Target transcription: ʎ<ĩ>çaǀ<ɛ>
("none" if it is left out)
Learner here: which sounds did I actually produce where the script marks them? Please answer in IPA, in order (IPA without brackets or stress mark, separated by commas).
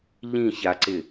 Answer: ĩ, ɪ